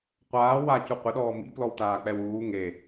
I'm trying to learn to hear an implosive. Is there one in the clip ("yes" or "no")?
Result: yes